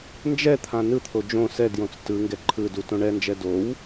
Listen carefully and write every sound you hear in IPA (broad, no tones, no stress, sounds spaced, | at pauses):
n d͡ʒ ɛ t̪ʰ ã n ɯ t̪ʰ o d͡ʒ õ s ɛ d j õ t͡s t ɯ ŋ ɡ ɛ ǃʰ ɯ d u t õ ɳ ɛ n d͡ʒ ɛ d o w